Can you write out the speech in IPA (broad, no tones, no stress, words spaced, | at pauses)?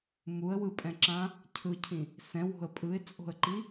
muə̯wɯpʼɛ̃ǁã | cʰɯcʰĩ | sɛ̃wo̤ə̯ pʼɯɪ̯t͡sʼo̤ə̯ǃi